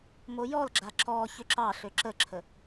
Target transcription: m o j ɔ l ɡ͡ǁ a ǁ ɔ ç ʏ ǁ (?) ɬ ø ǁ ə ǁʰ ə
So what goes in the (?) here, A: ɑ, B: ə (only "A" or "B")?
A